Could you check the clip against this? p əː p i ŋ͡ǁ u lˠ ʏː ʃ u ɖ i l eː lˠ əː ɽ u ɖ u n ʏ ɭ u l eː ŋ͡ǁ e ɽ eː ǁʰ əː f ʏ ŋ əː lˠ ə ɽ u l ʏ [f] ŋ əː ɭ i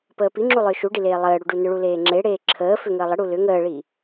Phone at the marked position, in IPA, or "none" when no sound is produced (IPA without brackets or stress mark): none